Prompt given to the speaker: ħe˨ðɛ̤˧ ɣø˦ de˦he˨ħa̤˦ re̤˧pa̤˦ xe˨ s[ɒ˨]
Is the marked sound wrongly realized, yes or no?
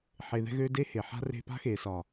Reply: no